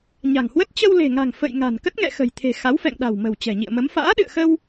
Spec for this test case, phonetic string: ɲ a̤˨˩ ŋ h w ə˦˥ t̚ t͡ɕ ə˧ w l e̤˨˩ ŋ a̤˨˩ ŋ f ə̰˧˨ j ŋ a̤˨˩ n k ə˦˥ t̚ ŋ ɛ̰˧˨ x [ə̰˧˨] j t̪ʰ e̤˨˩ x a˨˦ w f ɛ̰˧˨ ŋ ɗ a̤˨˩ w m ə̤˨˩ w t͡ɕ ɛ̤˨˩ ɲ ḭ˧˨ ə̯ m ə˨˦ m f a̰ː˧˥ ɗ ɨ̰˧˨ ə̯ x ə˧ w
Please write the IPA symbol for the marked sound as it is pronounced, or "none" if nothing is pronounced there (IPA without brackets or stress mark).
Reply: ə̤˨˩